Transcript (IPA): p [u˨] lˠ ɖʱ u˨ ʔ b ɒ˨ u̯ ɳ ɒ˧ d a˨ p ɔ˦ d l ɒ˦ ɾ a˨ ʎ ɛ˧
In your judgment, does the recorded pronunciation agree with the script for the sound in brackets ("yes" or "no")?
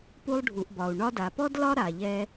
no